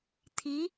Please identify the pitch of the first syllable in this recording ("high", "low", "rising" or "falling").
rising